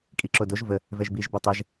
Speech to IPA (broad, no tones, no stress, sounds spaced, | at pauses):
kʼ i ǁ o d o ʒ v ə | v ɛ ʒ b i ʒ b œ tˤ ɛ ʒ